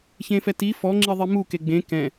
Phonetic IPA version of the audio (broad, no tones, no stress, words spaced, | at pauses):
çẽfɛti fɔŋ͡ǁiðˤi muke ɡ͡bẽ kɛ̃